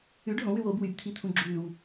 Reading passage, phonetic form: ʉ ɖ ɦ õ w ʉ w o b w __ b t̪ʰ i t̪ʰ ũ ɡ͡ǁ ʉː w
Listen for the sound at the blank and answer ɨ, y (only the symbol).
y